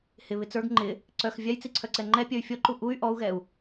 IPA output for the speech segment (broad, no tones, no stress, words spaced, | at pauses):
hɪβɪ t͡sə˞ɡ ŋ͡ǃɪ | ǀœx vʲajt͡siǀʰœǀɛ ŋ͡ǃɛpʲœy̯ fʲɔǃu ʔuy̯ ʔɔu̯ɣɛu̯